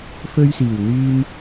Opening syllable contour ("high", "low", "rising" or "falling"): high